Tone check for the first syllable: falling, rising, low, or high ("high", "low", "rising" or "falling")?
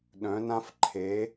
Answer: rising